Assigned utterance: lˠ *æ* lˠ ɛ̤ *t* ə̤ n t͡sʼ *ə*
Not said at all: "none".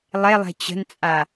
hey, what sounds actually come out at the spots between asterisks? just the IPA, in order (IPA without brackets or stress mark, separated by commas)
ɛ, t͡ɕ, a